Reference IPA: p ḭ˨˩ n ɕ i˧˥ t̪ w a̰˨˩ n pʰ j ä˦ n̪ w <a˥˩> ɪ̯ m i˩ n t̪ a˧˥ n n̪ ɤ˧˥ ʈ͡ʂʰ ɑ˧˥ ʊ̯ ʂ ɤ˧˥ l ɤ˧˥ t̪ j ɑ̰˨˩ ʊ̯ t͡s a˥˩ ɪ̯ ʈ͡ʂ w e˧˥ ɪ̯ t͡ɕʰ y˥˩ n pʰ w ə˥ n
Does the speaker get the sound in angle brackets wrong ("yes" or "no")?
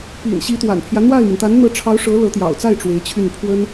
no